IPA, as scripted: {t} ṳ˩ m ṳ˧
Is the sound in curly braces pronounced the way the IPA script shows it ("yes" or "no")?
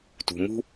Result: yes